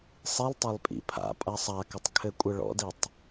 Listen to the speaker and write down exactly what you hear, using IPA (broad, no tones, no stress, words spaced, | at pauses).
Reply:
sˤilˠtˤelˠpʼḭ pʰa̰pʼa sˤakɪtˤkʰɘkʷʼɘ ɭɔ̰ditˤ